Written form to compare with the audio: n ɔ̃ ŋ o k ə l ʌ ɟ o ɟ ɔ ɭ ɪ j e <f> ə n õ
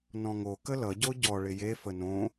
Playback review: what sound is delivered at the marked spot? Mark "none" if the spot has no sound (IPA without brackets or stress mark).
f